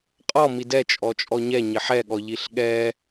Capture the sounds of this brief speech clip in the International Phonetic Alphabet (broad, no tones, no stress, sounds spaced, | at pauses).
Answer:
qʼ ɔ m i d ɛ t͡ʃʼ ɔ t͡ʃʼ ɔ ɲ ɛ ɲ ɪ ħ ɛ ɠ ɔ ʎ i ɬ ɠ ɛ